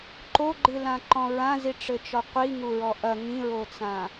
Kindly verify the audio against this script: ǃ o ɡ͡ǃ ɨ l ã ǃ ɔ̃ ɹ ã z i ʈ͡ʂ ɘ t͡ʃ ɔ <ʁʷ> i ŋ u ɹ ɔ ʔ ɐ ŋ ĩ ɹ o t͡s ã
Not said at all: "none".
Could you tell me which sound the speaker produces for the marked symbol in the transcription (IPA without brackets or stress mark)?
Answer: qʷ